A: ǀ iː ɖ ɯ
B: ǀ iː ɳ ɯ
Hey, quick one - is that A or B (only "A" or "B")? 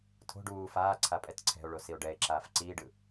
A